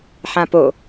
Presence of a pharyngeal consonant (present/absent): present